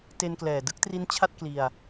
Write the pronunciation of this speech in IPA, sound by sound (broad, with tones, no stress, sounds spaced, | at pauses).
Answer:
t e˧ n k l ɛː˨˩ d ɯ˦˥ k̚ t r i˦˥ n t͡ɕʰ a˥˩ t̚ k l i˧ a̯